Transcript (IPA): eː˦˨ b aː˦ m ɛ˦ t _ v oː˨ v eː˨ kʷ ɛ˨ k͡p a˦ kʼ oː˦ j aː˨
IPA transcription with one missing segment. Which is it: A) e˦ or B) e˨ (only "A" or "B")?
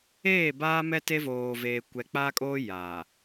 A